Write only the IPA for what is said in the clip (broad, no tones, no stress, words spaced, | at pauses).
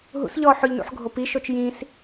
ɦṵsʎɔː ħʊʎnṵħ ɡʱopiʃot͡ʃ jĩs